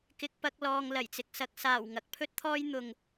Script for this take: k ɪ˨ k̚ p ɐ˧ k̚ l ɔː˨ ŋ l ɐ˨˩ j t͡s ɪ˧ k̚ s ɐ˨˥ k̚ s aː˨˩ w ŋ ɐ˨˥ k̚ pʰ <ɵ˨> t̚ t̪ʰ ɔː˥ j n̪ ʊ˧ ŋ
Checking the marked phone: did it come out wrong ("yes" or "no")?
yes